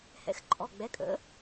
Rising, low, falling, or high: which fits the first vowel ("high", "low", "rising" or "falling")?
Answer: rising